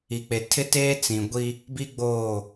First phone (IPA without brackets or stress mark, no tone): i